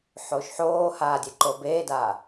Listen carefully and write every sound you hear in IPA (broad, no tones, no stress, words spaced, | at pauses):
ħoːʃħoːhaː dʲeǃobeːdaː